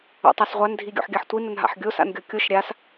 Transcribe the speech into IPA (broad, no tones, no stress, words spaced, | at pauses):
o̰tˤasʁʷan dʱiɡʲo̰ħɡʲaħtʷi nənɦa̰ħɡʲos a̰nɡʲɔkʲoʃ ɾʲas